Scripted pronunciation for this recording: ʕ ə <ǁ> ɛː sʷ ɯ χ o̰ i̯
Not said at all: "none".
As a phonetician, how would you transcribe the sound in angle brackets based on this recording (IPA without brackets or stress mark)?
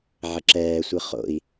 ǁ